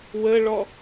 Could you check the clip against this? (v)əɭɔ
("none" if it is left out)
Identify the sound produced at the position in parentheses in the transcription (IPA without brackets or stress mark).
w